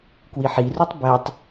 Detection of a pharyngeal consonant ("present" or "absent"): present